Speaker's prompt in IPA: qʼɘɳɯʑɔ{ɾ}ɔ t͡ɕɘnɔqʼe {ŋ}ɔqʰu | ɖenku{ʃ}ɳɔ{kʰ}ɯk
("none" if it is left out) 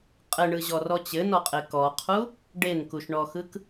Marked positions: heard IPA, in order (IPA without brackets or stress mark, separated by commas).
r, k, ʃ, x